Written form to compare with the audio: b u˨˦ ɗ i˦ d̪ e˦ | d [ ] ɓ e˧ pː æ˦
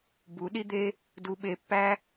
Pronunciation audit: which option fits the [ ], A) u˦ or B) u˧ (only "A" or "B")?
B